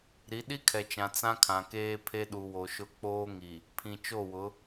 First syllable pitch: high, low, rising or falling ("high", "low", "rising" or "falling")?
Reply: rising